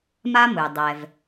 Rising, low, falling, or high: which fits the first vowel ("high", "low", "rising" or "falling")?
high